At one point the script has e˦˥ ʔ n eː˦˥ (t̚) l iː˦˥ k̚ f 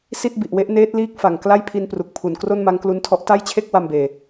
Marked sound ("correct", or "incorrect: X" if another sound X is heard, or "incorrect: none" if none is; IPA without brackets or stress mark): correct